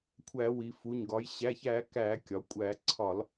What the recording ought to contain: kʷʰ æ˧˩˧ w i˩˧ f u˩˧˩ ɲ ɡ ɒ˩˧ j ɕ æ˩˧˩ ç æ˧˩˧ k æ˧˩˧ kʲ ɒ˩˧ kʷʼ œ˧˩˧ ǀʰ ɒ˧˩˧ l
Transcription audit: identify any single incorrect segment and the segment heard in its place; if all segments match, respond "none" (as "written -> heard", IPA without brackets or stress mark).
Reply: œ˧˩˧ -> æ˧˩˧